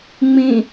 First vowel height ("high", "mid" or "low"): high